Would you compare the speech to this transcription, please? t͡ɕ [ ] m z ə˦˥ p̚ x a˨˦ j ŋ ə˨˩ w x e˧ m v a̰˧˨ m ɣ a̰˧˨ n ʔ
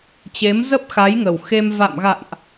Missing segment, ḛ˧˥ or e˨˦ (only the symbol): e˨˦